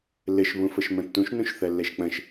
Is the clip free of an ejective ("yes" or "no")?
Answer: yes